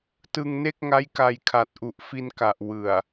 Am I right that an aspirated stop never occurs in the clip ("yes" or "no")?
no